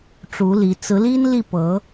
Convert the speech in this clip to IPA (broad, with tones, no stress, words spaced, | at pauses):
ʈ͡ʂu˧˥li˧˥ t͡sɹ̩˧˥li˥nli˥˩ pɤ˧˥